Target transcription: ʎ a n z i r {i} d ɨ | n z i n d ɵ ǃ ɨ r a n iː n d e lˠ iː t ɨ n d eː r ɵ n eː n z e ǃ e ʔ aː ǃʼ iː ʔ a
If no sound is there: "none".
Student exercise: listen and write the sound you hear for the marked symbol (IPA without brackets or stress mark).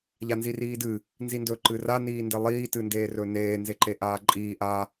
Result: iː